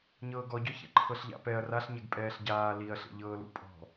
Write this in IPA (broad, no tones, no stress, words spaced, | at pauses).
ɲɤːɡɔɟɔçḛ ǃʰɤɬʎa̰pɛɐ̯ raɬɲɛɡ pʼɛːɬɟaː liɐ̯ ɬḛʎɤːlṵpʼɔ̤